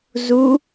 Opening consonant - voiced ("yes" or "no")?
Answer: yes